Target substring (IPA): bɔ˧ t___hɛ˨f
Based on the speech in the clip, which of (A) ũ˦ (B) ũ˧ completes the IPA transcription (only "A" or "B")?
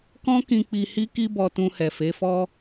B